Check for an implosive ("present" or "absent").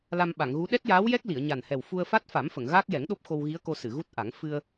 present